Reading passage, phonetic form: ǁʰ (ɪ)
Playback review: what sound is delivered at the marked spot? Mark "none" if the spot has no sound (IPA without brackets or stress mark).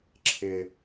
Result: ɪ